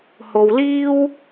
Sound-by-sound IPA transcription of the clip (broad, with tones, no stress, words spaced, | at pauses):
ho˨wliː˥w